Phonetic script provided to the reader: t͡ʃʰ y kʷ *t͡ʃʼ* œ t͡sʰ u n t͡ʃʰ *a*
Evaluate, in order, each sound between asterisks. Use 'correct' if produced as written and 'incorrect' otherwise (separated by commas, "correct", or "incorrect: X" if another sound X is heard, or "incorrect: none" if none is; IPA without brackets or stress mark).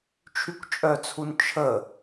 correct, incorrect: ə